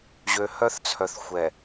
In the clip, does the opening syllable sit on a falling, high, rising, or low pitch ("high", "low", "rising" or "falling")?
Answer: low